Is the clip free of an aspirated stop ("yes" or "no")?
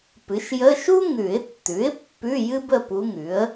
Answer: yes